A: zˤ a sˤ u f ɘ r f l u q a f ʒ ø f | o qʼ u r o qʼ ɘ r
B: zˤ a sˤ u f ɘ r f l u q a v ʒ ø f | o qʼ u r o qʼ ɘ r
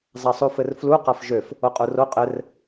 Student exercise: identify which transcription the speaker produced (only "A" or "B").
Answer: A